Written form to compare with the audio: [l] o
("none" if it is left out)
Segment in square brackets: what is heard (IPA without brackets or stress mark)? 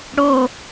ɽ